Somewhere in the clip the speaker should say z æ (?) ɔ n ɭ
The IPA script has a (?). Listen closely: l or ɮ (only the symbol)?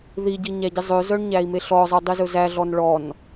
ɮ